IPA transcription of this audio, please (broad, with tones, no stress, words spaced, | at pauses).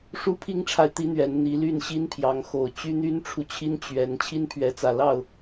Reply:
ʂu˦pʰi˦ŋʈ͡ʂʰa˨ɪ̯ t̪i˦n̪ɥɛ˨˦n n̪i˨˦ ly˥˨nɕi˦npʰjɑ˨˦ŋxo˨˩ʊ̯ t͡ɕy˦n̪y˦nʈ͡ʂʰu˨ t͡ɕʰi˦n t͡ɕɥɛ˨˦n t͡ɕʰi˦npʰɥɛ˨˦t͡sä˨˩ lɑ˥˨ʊ̯